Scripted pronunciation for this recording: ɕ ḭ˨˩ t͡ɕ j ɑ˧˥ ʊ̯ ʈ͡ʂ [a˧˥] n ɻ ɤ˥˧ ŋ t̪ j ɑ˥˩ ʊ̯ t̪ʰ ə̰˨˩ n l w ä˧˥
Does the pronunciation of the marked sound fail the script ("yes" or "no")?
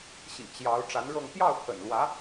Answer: no